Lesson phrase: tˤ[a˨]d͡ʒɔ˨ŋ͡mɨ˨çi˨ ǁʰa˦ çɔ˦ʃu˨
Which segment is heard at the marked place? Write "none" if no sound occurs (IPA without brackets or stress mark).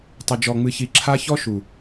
ɐ˨